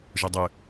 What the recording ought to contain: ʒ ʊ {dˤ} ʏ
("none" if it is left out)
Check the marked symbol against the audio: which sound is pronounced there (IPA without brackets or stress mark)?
dˤ